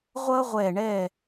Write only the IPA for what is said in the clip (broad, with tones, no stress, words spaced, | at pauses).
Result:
ʁʷʌː˥ʁʷɛː˧˩ ɳɛ˧˩